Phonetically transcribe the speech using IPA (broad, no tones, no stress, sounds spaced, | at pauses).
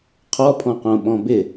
qʰ ɔ pʰ ɔ̃ q õ ɓ ɔ̃ b ɪ